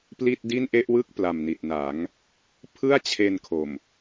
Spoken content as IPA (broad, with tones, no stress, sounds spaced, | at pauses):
p l i˥˩ t̚ d i˥˩ n ʔ e˥˩ ʔ w ɯ˥˩ k̚ p l a˨˩ m n i˨˩ t̚ n a˩˦ ŋ | pʰ ɯ˥˩ a̯ t͡ɕʰ e˧ n kʰ o˨˩ m